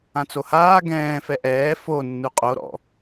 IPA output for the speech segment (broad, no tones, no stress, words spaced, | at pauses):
ãt͡sohaː ɡɛ̃ː fɛʔɛː fo nːuqʼo ɾɔ̰